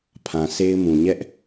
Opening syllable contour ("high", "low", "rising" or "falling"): low